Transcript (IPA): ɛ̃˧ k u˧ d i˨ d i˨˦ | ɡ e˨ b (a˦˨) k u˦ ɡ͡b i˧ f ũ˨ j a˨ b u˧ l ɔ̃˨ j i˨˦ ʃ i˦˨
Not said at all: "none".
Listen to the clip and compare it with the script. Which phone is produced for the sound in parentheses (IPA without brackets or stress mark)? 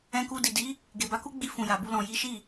a˨˦